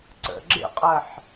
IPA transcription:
ǀ ə̰ ɡ͡ǁ ḛ qʼ ɜ ħ

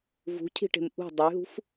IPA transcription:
v ṳ cʰ i̤ ʈ e̤ m ʔ ṳ dˤ ə y̯ ɦ ṳ f

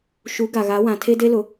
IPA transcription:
ʃ u˨˦ ɡ a˨ ɣ a˨˦ w ã˨ tʰ e˦ d e˦ l ʊ˨

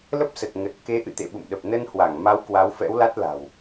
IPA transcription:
l ə˦˥ p̚ s ə˨˩ t̚ ŋ ə˨˩ t̚ k e˨˦ ʔ ɨ̰˧˨ t̪ ḛ˧˨ ɓ ṵ˧˨ m ɗ ə˨˩ p̚ n ə˧ n h w a˧˩ ŋ m a˨˦ w k w a˨˦ w f ɛ̰˧˥ w l a˦˥ t̚ l a̤˨˩ w

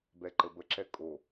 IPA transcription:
b ɛ ǃ ə b ə ǁ ɛ kʼ o

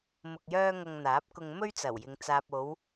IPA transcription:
m ʊ˧ k̚ j œː˥ ŋ ɐ˧ ŋ n̪ aː˨˥ p̚ k ʊ˧ ŋ m ɵ˥ ɥ t͡s ɐ˨˩ w j ɪ˨ ŋ t͡s aː˨ p̚ o˨˧ w

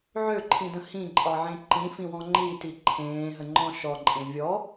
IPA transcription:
ʕ ø ǃʰ ĩ d ə̃ h ĩ ǃʼ ɒ ʕ ẽ ǃ ĩ f ĩ w ɔ̃ ŋ͡ǃ i t i ǃʰ ẽː ɦ ə ŋ͡ǃ ɔ̃ ʃ ɔ ǃʼ ẽ vʲ ɔ

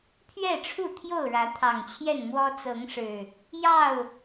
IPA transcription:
pʰ ɥ ɛ˥˨ ʈ͡ʂʰ u˥˨ t̪ʰ j o˥˨ ʊ̯ ɻ ä˨˦ t̪ʰ ɑ˨˩ ŋ t͡ɕʰ j ɛ˥˨ n m w ɔ˦ t͡s ɤ˨˦ ŋ ʂ ɻ̩˨˩ | j ɑ˥˨ ʊ̯

